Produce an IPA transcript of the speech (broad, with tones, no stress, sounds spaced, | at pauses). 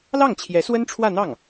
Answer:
l ɑ˥˩ ŋ t͡ɕʰ j ɛ˧˥ s w ə˥ n ʈ͡ʂʰ w ä˥˧ n̪ ɑ˥˩ ŋ